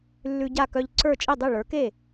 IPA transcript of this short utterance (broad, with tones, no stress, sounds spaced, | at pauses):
lː ʉ˧ ɟ a˥˩ k œ˧ ʎ ǀ ə˞˥˩ t͡ʃʼ i˥˩ dˤ i˥˩ ɭ ə˞˩˥ k e˥˩